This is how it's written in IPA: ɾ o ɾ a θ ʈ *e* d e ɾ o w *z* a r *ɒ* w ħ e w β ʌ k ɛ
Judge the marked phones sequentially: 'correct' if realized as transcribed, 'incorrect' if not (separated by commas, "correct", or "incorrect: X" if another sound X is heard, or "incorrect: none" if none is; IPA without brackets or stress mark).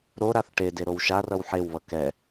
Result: correct, incorrect: ʃ, incorrect: ʌ